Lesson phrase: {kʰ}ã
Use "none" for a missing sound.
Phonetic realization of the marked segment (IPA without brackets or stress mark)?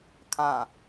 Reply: kʰ